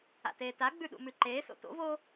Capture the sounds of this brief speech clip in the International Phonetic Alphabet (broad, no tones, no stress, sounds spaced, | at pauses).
a̰ t eː t a ɡ͡b ʉ ɗ ṵ m ʉ ǃ eː s o̰ t o̰ v oː